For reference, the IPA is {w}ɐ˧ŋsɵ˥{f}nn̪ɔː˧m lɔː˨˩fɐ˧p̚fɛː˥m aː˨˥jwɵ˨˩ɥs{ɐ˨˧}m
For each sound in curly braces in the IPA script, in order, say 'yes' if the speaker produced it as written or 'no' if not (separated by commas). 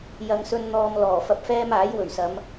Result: no, no, yes